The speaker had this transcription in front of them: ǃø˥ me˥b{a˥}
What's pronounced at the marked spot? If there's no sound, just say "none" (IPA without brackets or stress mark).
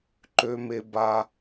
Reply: a˥